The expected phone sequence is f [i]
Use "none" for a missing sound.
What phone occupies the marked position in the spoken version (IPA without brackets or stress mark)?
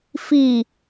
i